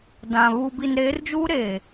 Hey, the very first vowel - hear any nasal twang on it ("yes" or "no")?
yes